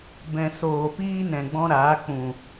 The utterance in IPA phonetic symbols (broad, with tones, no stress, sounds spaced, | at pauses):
b ɛ̃˨ s oː˨ p iː˦ n ɛ̃˨ ɡ͡b ɔ̃˦ ɾ aː˨˦ k͡p ũ˨